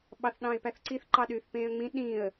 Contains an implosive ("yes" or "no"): yes